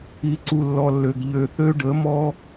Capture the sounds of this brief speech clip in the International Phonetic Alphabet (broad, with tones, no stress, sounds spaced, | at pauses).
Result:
i˧ ǀ u˧ lː ɔ˧ lː ø˨ ɡ ʎ ø˨ θ ø˦ ɖ ə˨˦ m ɔ˦